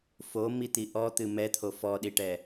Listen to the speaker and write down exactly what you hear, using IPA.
f o m i t̪ i ʔ ɔ t̪ ɨ m ɛ t̪ʰ o f ɔ ɗ i ʈ ɛ

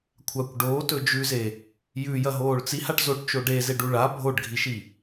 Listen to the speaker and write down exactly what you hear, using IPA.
kʷʰ a kʷ ɖ oː t ɵ d͡ʒ ʉ z e | j ʉ j ɐ ɦ oː ɭ t͡s i h a ʈ z o ʈ t͡ʃ o ɖ e z e ɖ u ɭ a bʱ o ɖ ɡʱ i ʃ i

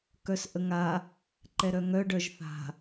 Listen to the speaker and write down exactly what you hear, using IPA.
k œ s ʔ ə ŋ a | ǃ ɛ ɾ œ ŋ œ ɖ œ ʒ θ a̤

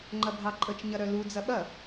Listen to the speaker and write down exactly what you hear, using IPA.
ŋ͡ǃ ɐ bʱ ɑ ǃʼ ə t͡ʃ ɲ ɐ ɾ œ l u d͡z ɐ ɓ ɐ

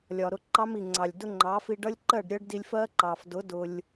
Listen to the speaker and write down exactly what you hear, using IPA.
lʲ ɒ˨ ɾ ʊ˧ ǃ ɑ˦ m i˨ ŋ͡ǀ ɑ˨ lʲ d ʊ˦ ŋ͡ǃ ɑ˨˦ f i˧ ɖ ʌ˦ lʲ ǃ ɜ˦˨ ɖ ɾʲ ɜ˦ ɖ d i˧ lʲ f ɜ˦ ǃ ɑ˨ f d ʊ˨˦ d ʊ˧ lʲ

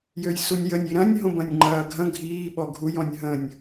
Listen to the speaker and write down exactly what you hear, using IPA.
j ø j s u nʲ j ə nʲ i ɾ ɐ̃ nʲ ɦ õ b ɐ̃ nʲ ŋ͡ǃ ɐː ɡʱ ɐ̃ ɡʱ iː ɓ ɔ ɡʱ u j ɔ̃ nʲ ɦ ə̃ nʲ

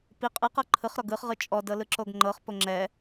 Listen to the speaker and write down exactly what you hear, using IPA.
p i qʼ ɯ q ɤ ǃʰ ɯ χ ɾ ɔ ɡ ɯ χ ʁ ɯ t͡ʃʼ ɔ d ɤ l ɯ ǁ o ɡ ŋ͡ǃ ɤ χ p o ŋ͡ǁ ɛ

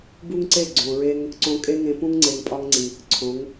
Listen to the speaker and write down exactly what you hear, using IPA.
b u˦ ŋ ǀ e˦˨ ɡ͡ǀ õ˨ ɹ e˦ ŋ | ǀ õ˧ kʼ e˦ ŋ ẽ˧ p ũ˦ ŋ ŋ͡ǀ e˨ ŋ pʼ ɒ˧ ŋ ŋ͡ǀ i˨ | ǀʰ õ˨˦ ŋ

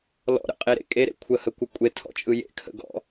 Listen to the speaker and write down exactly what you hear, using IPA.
l ɔ̰ ɾ ə̰ qʼ e ɾ ḛ kʼ e ɾ ḛ kʷʰ ə h ə kʷ ə kʷʼ e tʰ ɔ̰ t͡ʃʼ ɯ j ḛ kʰ ə̰ ɡ ɔ̰

